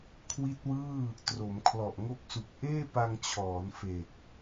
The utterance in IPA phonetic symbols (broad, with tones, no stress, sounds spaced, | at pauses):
kʰ w i˦˥ t̚ w ɯː˥˩ | t r o˩˦ m kʰ l ɔ˨˩ ʔ ŋ o˦˥ k̚ s u˨˩ k̚ ʔ eː˥˩ p a˧ ŋ t͡ɕʰ ɔː˩˦ n f e˨˩ k̚